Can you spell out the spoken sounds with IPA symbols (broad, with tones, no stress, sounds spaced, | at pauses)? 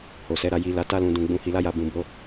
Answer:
h o˨ s ɛ˨˦ ɾ a˧ j i˧ l a˧ t a˦ l ũ˧ d ũ˧ ɡ͡b ũ˧ h i˧ l a˦ j a˧ b ũ˨ b o˧